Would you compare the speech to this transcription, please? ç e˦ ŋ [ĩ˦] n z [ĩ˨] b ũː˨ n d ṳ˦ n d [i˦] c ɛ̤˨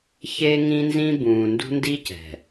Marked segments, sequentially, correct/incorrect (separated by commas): correct, incorrect, correct